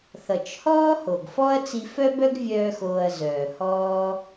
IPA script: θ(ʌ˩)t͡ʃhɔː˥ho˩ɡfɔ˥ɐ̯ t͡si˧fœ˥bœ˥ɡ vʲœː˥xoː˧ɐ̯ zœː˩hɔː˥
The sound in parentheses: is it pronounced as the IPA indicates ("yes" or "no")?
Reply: yes